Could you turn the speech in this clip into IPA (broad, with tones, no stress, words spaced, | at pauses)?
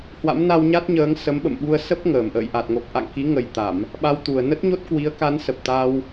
hwa̰˧˥mna˧wɲa˦˥t̚ɲəː˨˦ŋ sə˨˦mɓə̰˧˨mɓu˧ə̯ sə˦˥p̚ ŋəː˨˩m ʔə̰ː˧˨jʔa˨˩t̚ŋo˨˩k̚ ʔa̰˧˨ŋki˨˦ŋə˨˩jt̪a˧˩˨m | ɓa˧wt̪u˨˩ə̯ nə˦˥t̚ɲo˦˥t̚kwi˨˦ə̯ka˨˦n sə˨˩p̚t̪a˧w